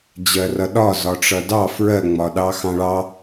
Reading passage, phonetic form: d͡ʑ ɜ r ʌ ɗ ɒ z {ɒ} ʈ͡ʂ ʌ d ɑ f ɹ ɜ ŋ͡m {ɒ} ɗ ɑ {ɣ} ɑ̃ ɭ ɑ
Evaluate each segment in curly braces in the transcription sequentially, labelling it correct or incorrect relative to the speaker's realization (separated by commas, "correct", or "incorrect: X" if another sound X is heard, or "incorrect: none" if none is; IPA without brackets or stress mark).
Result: correct, correct, incorrect: x